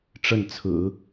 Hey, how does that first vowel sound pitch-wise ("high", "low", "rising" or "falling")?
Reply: falling